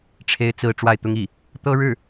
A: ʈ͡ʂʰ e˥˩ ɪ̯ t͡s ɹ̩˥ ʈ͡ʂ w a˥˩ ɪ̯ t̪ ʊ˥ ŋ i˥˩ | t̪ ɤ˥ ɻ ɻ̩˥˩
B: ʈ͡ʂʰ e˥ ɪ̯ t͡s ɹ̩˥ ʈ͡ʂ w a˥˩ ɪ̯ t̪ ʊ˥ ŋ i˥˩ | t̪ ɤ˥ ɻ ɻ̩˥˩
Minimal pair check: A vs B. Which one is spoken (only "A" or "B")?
B